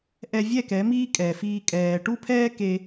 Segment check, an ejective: present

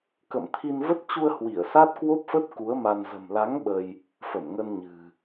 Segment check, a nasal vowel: absent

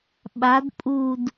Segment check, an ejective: present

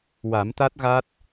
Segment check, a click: absent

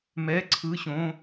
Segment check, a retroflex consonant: absent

